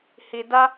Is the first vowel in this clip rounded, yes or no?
no